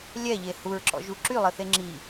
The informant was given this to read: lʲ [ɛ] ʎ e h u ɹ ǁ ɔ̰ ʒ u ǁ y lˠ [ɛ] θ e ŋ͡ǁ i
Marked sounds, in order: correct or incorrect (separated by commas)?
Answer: correct, incorrect